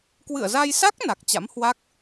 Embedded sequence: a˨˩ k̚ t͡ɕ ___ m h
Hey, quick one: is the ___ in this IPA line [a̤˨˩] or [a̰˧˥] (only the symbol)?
a̰˧˥